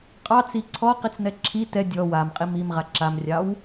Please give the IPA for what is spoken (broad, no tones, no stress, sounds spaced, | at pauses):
qʼ ɑ t͡s i ǀʰ ɔ q i t͡s n ɛ ǁʰ i t ɛ dʲ ɔ w a m qʼ i m i m ʁ a ǁ a m rʲ ɑ w